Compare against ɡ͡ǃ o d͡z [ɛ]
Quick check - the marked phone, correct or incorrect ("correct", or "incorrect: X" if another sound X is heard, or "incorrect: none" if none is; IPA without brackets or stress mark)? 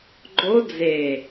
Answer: incorrect: e